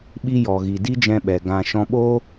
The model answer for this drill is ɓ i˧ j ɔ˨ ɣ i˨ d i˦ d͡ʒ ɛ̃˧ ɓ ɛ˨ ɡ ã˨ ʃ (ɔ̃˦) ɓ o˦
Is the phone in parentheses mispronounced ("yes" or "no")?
yes